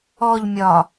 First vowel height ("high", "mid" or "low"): mid